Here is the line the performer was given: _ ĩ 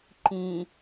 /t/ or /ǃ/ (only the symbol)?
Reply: ǃ